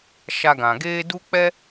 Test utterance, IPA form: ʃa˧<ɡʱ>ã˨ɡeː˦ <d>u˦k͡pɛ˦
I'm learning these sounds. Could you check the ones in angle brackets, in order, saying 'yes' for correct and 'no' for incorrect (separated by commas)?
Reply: no, yes